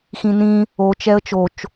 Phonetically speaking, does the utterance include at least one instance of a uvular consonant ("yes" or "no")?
no